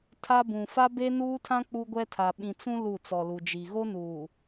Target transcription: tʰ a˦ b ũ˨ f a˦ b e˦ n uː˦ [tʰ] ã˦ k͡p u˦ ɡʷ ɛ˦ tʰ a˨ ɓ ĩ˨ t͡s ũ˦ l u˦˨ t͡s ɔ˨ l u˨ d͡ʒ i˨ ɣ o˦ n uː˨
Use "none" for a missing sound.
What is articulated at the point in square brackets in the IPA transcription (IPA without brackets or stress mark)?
tʰ